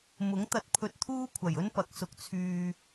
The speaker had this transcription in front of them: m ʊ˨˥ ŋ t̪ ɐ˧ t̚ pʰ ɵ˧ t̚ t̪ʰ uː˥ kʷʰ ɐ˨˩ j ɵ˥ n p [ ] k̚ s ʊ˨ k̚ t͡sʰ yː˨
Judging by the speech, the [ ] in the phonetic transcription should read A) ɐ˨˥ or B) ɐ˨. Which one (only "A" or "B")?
A